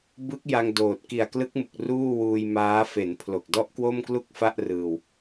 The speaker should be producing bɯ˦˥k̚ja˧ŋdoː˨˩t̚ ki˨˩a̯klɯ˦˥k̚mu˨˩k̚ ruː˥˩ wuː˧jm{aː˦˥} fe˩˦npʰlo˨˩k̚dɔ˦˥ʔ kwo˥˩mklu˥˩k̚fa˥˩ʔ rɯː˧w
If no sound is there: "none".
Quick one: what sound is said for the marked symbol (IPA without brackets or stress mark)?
aː˦˥